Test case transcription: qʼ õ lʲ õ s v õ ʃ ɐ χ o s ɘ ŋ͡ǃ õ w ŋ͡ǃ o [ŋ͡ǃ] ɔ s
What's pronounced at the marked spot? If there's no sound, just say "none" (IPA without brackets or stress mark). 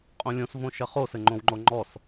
ŋ͡ǃ